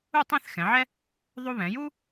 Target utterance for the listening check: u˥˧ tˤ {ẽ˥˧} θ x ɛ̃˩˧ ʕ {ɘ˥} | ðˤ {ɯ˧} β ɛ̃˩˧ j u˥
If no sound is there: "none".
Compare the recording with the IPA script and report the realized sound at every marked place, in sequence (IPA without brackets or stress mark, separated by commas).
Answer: ẽ˥˧, ɛ˥, u˧